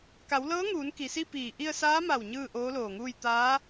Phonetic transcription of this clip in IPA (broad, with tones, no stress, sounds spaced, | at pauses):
k a˩˧ w l ɤː˧˥ ŋ uː˩˧ n k i˩ s i˥˨ p iː˧˩ ʔ i˧ ə̯ s aː˧˥ m a˧˩ w ɲ ɯː˥˨ ʔ oː˧˥ l oː˧˩ ŋ uː˥˨ j t̪ aː˧˥